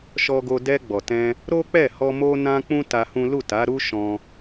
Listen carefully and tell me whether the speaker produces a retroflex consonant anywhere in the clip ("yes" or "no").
no